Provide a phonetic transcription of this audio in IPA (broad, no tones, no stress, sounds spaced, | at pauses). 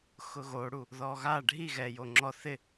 x ʊ ɣ o ɽ u | ð ɔ ɣ a ɖʱ i ɣ ɛ j o ŋ͡ǁ ɔ θ ɪ